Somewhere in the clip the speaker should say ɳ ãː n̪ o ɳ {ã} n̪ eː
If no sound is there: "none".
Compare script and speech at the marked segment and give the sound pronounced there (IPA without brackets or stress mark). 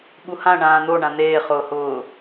ã